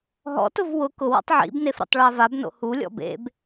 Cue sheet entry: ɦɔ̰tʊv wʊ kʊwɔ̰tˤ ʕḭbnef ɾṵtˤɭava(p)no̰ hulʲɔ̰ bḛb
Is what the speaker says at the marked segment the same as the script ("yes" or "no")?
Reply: no